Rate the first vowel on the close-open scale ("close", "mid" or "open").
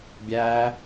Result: open